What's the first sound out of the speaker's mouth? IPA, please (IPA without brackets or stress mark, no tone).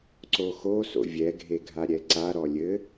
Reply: ǀ